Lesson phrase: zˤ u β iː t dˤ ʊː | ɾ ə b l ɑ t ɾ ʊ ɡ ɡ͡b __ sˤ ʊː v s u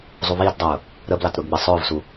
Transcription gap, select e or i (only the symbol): i